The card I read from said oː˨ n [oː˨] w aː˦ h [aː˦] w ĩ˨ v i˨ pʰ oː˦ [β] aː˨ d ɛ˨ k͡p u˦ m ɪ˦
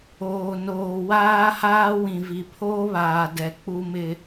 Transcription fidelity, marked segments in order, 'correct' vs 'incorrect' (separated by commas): correct, correct, correct